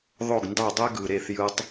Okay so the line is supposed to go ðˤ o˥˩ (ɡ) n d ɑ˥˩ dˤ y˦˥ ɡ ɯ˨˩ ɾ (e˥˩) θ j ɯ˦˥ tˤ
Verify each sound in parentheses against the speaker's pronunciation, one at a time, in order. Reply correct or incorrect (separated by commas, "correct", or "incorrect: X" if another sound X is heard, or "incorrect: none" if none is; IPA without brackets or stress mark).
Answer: correct, correct